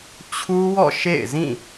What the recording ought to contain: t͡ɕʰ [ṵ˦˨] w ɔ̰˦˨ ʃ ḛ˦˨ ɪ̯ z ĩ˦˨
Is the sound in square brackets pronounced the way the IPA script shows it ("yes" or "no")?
no